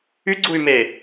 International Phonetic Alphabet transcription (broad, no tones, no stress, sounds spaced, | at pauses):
y ɡ͡ǀ u y̯ m e